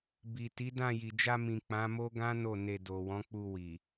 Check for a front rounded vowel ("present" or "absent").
absent